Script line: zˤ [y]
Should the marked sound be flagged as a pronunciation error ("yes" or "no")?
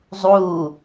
yes